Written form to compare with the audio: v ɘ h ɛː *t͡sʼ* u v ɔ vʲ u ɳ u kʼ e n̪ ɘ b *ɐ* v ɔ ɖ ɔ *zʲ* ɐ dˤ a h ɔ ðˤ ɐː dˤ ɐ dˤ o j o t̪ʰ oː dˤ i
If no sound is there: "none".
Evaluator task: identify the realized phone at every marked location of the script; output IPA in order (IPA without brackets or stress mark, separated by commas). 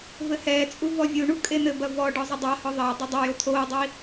t͡sʼ, ɐ, zˤ